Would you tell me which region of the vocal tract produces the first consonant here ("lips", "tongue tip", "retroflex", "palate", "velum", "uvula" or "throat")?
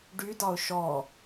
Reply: retroflex